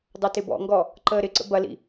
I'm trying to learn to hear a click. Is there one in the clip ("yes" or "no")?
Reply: yes